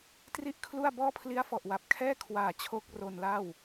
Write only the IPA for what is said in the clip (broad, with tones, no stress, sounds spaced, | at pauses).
t r i˥˩ ʔ kʰ l u˥˩ a̯ b ɔː˥˩ pʰ l i˦˥ a̯ f ɔ˨˩ ʔ w a˨˩ p̚ kʰ ɛː˥˩ kʰ w aː˨˩ t͡ɕʰ o˦˥ k̚ r o˧ n l a˥˩ w